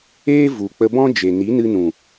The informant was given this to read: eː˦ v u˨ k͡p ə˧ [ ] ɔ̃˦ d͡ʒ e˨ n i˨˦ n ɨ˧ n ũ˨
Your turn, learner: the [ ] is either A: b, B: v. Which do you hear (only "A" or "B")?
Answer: A